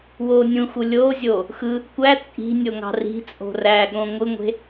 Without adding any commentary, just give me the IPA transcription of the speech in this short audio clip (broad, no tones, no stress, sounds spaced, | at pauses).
w oː nʲ ũ x u lʲ oː zʲ oː | x ɯ | kʷ æ t͡sʼ i̤ nʲ o ŋ ɑ̤ r i̤ t͡sʼ o̤ r æː ɠ õ ŋʷ ɯ ŋʷ e̤